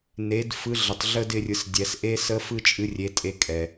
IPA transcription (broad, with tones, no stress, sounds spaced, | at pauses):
n e˩˧ d f ɯ˨˥ ɮ ə˩ tˤ ɮ ə˦˥ d ɪ˧ rʲ ɯ˩˧ s dʲ ɛ˩˧ s ʔ e˦˥ s ə˦˥ f ɯ˦˥ t͡ʃʼ ɨ˨˥ rʲ e˨˥ tʼ e˧ kʼ ɛ˩